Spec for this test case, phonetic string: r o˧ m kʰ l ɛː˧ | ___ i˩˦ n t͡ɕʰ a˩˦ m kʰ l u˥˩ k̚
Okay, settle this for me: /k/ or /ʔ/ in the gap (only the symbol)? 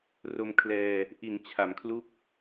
ʔ